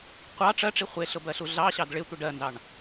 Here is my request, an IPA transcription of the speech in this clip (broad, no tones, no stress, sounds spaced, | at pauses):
qʷ ɑ ʈ͡ʂ ɜ ʈ͡ʂ i χʷ ɪ ɬ ʊ b ɜ ɬ u ɮ ɑ ɕ ɑ d ɭ ɪ tʷ ɪ ɖ ɜ n z ɑ ɳ